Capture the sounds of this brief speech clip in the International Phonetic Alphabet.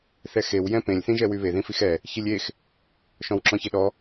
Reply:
θ ɛ x e w j ɛ̃ p ẽ lʲ θ ĩ ʒ ɛ w y β e ð ĩ f i x ɛ | ç i lʲ e x | ʃ ɔ̃ w ǁ ɔ̃ ç e ɗ ɔ

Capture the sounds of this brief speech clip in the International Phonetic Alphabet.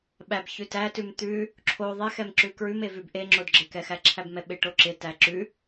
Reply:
ɓ æ b ç ʉ t æ t ʉ m t̪ ʉ | ǁʰ o ðˤ e x ɛ m ǁ ʉ k ɹ ʉ m e v ʉ b ʔ e ŋ͡ǁ o d ɡ͡ǁ ɪ k ɛ x æ ǁʰ æ b m ɛ ɓ ɪ ʈ o ǁ ɪ t æ ǁ ʉ

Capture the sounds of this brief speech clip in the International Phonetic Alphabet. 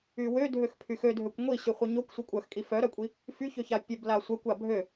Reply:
y w ø dʱ ø x pʰ y x ø dʱ ø kʷ ŋʷ i ɕ y χʷ œ ɲ o kʷ sʷ œ kʷʼ œ x kʼ i f œ ɾ œ kʷʼ i | f y ç ø ç a pʲ œ b l a sʷ œ kʷ a bʱ ø

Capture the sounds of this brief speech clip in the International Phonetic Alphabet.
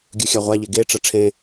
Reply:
ɡʲ ɯ xʲ a ʁʷ a ʎ e ɡ e ʈ͡ʂ ʌ ʈ͡ʂʰ ẽ

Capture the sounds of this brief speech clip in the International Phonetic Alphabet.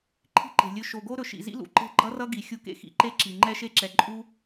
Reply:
ǃʰ i̤˦ ǃ e̤˨ lʲ ɵ˧ ʃ o˨ ɡ o˦ ɾ ɵ˨ ʃ ḭ˨ z ḭ˦ l ṵ˨ ǃ e̤˦ ɡ͡ǃ ʌ˦ r ʌ˦ ɡ i˨ xʲ u˧ k ḛ˧ x ḭ˨ ǃ e˦ ǁ i˨ ŋ͡ǃ ɛ˦ ʃ e˦ ǁ ɛ˨ ǃʼ u˦

